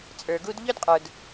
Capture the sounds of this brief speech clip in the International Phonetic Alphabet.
t͡sʼə˞˨ɡu˦d ʎɵ˧dqʼə˞˨d

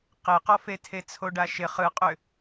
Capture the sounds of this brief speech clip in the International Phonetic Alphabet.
qeqɔfe tʰet͡sʰoɖaʃɪ χɯqʼʏ

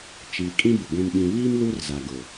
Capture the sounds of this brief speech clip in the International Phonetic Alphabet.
t͡ʃiː˨kʼĩ˦bɪ˨ ɡʷĩ˨mɓĩ˨βiː˦m lu˦rza˨ɡʊ˨

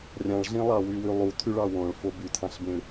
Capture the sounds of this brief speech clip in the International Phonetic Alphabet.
rʲɑ̃ɭɮĩ lˠɑwywylˠu tʰyɭɑwõɭfo bytʰɑ̃ɬbĩɭ

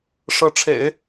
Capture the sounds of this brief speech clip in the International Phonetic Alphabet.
ʂɤ˧˥ʈ͡ʂʰḛ˨˩˦ɪ̯

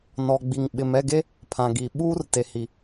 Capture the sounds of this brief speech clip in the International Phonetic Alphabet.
nɔ˨ɡ͡bi˨ŋ ɓɪ˨mɛ˦˨ɡe˦ | pʰã˨ɡi˨ ɓuː˦r te˨hi˨

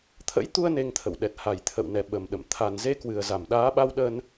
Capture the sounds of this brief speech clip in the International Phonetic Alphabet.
t̪ʰə̰˧˥jt̪u˧ə̯ ne˧ŋt̪ʰə̰˧˨w ɗɛ˨˩t̚ha˨˩j t̪ʰə̰˧˨wnɛ˨˩ ɓə˨˩mɗə̰˧˨m t̪ʰa˨˩nze˧kwɨ˨˩ə̯ za˧˩mɗaː˨˦ɓa˧wɗə˧n

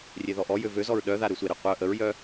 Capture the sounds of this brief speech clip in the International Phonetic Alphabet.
rʲeðɔʔɔjø vøzɔɹ ɗœða ɾøsʷeɾe qʷœ ʔəɹjœ

